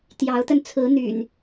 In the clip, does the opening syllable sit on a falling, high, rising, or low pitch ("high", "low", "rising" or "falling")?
rising